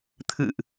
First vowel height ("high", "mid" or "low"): high